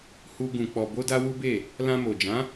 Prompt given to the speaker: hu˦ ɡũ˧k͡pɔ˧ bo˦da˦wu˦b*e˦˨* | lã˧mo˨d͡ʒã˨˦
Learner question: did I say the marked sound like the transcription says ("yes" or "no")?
yes